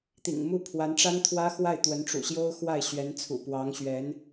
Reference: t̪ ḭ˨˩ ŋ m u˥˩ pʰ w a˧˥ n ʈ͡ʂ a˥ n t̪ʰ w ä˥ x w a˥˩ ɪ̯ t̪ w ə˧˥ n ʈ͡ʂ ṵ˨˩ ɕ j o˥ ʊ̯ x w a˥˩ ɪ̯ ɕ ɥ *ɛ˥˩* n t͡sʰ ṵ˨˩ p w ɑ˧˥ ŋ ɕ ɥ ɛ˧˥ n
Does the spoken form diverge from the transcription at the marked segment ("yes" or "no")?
yes